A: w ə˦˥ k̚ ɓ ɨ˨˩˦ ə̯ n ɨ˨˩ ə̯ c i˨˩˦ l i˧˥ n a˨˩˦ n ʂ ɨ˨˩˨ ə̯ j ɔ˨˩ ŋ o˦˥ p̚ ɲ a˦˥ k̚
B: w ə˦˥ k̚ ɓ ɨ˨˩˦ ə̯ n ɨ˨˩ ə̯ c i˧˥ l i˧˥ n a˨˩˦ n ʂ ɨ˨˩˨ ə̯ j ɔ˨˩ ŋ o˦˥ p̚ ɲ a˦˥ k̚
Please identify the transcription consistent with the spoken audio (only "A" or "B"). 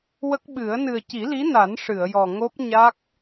A